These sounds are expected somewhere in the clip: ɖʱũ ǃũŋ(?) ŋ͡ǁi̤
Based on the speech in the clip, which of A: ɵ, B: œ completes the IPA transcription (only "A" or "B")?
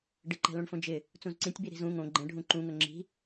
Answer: A